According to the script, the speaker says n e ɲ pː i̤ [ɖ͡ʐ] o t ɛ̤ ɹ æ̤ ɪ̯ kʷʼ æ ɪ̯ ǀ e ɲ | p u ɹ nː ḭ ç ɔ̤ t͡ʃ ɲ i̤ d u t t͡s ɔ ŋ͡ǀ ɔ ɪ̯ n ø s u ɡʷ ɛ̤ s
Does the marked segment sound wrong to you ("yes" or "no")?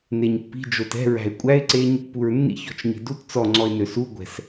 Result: yes